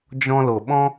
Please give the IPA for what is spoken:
d͡ʒɔ̃˧lo˨ɓɔ̃˦

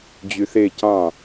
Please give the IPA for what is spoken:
d͡ʑyθe cɑ̃

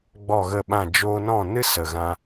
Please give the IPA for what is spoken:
ɡ͡bɔ˦˨ɣə˦˨ɓã˦˨ d͡ʒoː˧nɔ̃˦˨nɨ˦ sə˨ɣã˧

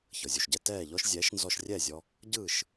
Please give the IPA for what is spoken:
çɤ˩zʲu˩ʃɟɛ˧ tɛː˥˩ʎɔ˥ʃ zʲɛː˩˥ʃnzɔ˧ʃrʲɛː˥˩zʲɔ˧ | ɟɯː˥˩ʃ

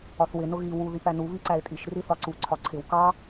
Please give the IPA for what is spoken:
ɒθwɪ nʊɣi wu ðipænu βiǀæɪ̯tʼiʃ riθɒǀu ǀʰɒǀʰɪw kɑ

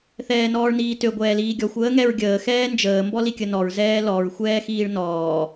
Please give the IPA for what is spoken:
θɛːnɔːɭniːtø ɡʷɛːliːɡʲɔxʷ əːŋɛɹɡʲəː xɛːnd͡ʒəː mbɔlikʲənɔɹ zɛːlɔɹ xʷɛːxiːɭnɔː

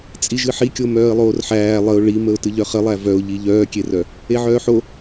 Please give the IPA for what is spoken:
t͡sʼiʒɨħikʲo mœːə̯lˠoːrħæː lˠəʊ̯ ɭiməʊ̯ tɨʎœχəlˠæ vœʊ̯ʎi ʎœːkʲerœ | eʕœːħo

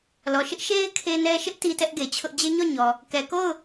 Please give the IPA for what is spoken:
lɔ˨ʃɪ˦ʔ ʃe˦ɪ̯ kʰe˦nɛ˦ ʃɪ˦ʔ ti˦tɛ˦ʔɡe˨t͡ɕʰʊ˦ʔ d͡ʑe˦ɲɔ˦˨ɲɔ˨ | kɛ˨ko˦˨ʊ̯

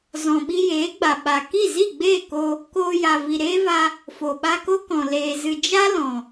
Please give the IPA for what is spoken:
zɔ̃˨ɓi˧jeː˨˦ɡ͡ba˨ ɓa˨ ki˦˨zi˦˨ɡ͡beː˦˨ko˧ | koː˧ja˨ vi˨ɾeː˦va˧ | fo˨ɓa˧ko˦kɔ̃˨ leː˨ zɨ˨d͡ʒa˦ lɔ̃˨

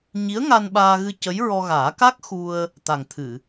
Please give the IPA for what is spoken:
ɲi˧˥ə̯ŋa˧n ɓaː˧ɣɨ˧ cə˧˥jɹɔ˧ ɣaː˨˩˦ ka˦˥k̚ xu˧ə̯ | t̪a˨˩ŋt̪ʰɨ˨˩˨

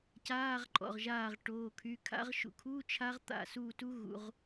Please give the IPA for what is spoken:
caː˧˥˧ʁǃʼɔ̰˩˧˩ʁʒaː˧˩ʁ ʈoː˩˧˩kʰy˩˧˩kʰa̰˦˥ʁʃṵ˧˩ kʰu˧˥˧ t͡ʃʰa˦˥ʁt̪a̰˧˩ suː˧˩tu˦˥ɣṵ˩˧˩ʁ

